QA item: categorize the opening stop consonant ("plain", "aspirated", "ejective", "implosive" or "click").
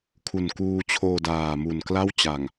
aspirated